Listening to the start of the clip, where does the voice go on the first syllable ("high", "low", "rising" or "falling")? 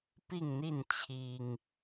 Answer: falling